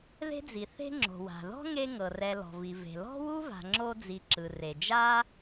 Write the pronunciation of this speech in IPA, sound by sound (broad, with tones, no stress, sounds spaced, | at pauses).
ð e̤˥ d͡z i˨ θ e̤˦ ŋ͡ǁ o̤˩ w a̤˩ ð ɔ̤˥ ŋ e˦ ŋ ɤ˩ r ɛ˨ l ɔ̤˩ v i˩ v e̤˩ l ɔ̤˥ w u˥ v a̤˨ ŋ͡ǁ o˦ d͡z i˨ ǁ ɯ˩ r e˩ d͡ʒ a˥